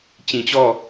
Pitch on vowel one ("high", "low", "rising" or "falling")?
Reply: low